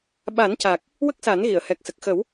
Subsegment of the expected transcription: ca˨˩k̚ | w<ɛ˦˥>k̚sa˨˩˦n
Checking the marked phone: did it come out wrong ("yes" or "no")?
yes